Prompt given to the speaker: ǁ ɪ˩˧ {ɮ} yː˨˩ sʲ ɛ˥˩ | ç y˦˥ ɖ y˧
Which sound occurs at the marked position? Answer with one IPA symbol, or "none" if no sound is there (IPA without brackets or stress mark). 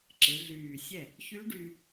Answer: ɮ